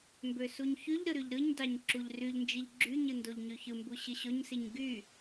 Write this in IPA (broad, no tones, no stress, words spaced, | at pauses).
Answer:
mbøsuɲçyʎɾɯ ɾyʎɾɯɲdɑɲ ǁuʎryʎnd͡ʒiʎ ɡ͡ǁyɲɯ ndoʎɲyçɯmbu ɕɯɕoɲsiɲ ɡy